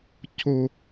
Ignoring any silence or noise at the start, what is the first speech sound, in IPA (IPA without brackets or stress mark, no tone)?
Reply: cʰ